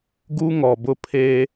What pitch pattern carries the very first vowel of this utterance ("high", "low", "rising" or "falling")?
high